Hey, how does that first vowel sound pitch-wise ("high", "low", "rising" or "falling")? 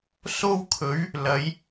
high